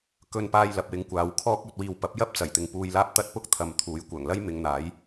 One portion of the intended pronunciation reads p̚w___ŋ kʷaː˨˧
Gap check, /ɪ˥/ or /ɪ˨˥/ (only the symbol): ɪ˨˥